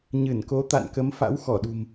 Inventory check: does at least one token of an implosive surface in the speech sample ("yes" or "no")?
yes